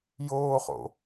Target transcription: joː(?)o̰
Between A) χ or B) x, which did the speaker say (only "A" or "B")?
A